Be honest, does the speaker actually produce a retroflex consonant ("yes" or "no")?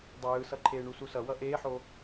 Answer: yes